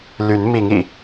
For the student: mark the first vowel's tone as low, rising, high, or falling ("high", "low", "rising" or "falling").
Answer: rising